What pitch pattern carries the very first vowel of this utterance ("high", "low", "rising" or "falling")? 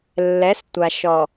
rising